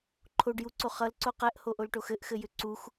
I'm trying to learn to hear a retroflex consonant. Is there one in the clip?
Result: yes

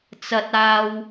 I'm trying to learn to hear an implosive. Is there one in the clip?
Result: no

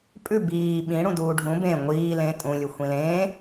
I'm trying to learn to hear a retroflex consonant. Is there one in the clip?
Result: yes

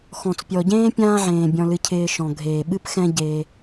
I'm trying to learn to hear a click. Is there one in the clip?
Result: no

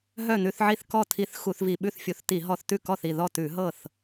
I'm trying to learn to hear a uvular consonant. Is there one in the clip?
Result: no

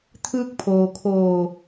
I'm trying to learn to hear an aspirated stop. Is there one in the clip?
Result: yes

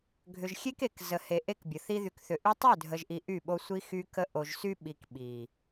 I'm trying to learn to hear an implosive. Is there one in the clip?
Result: yes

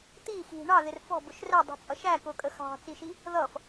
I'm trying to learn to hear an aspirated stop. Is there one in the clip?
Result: no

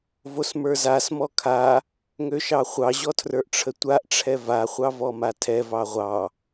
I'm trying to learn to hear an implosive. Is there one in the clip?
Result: no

